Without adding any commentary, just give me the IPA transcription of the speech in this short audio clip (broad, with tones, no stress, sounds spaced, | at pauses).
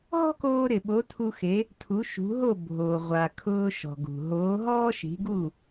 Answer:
ɦ ɔ̤˥ k oː˧ ɾ ɪ˩ ɓ o˩˥ tʰ u˧ x e˩˥ | tʰ u˩˥ ʃ ṳ˩˥ ɦ o˥˩ bʱ o˩ ʁʷ a˩ kʰ ʊː˧ ʃ ɔ̤˩ ɡ ṳ˩ ɦ oː˩˥ ɦ ɔː˥ ʃ i̤˩˥ ɡ u˥˩